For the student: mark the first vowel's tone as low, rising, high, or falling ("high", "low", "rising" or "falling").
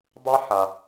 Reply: high